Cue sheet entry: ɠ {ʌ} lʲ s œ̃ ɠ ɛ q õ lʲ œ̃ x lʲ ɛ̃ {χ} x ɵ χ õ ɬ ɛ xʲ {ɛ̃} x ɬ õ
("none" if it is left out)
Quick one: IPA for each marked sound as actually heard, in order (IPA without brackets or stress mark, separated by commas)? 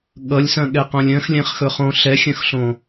ʌ, χ, œ̃